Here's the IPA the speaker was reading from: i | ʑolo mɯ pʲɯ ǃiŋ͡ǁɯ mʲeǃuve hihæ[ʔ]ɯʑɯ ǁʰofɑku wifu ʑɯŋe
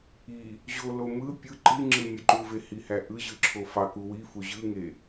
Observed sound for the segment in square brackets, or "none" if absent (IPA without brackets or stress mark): ʔ